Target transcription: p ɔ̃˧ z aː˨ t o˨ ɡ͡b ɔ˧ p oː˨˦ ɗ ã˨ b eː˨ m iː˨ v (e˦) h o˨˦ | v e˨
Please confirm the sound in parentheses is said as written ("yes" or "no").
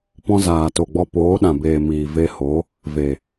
no